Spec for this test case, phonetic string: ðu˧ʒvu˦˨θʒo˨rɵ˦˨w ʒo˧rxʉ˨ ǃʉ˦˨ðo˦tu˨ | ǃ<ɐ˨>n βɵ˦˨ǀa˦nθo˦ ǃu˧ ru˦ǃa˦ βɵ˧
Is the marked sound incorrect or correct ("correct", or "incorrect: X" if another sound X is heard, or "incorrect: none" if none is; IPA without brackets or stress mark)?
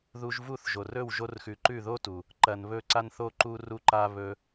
correct